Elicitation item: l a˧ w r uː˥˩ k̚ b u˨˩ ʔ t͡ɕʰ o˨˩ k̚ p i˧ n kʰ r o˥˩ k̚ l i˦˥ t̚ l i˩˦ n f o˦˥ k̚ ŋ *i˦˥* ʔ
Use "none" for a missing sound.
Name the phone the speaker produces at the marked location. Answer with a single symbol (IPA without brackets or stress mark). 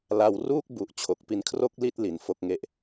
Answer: e˦˥